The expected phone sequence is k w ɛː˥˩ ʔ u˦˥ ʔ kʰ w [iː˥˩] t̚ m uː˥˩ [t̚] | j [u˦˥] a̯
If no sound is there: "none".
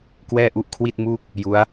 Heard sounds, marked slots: i˥˩, k̚, u˦˥

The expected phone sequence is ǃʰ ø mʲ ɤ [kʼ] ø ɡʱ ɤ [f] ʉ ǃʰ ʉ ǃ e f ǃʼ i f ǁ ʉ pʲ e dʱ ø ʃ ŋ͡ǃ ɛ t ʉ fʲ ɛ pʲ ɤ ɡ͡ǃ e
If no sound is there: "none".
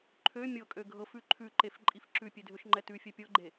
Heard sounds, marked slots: kʼ, f

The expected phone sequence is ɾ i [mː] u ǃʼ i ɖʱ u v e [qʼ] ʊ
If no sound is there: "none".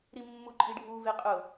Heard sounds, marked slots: mː, qʼ

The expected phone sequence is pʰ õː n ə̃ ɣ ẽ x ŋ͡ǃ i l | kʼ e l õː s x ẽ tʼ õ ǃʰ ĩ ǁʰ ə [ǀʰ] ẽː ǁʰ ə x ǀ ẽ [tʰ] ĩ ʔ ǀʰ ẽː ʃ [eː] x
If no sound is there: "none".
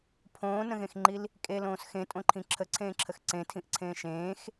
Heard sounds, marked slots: ǀʰ, tʰ, ẽː

